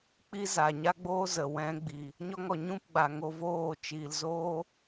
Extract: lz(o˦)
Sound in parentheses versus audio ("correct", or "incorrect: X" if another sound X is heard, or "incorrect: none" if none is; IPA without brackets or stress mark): incorrect: oː˦